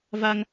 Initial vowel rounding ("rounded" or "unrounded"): unrounded